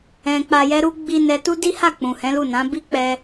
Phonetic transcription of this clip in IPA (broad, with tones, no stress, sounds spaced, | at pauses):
ɛ̃˨ k͡p a˨ j ɛ˧ ɾ u˧ ɡ͡b i˦ n ɛ˧ t u˦ d i˦ h a˦˨ k͡p ũ˨ h ɛ̃˨˦ l u˦˨ n ã˨˦ b i˦ k͡p ɛ˧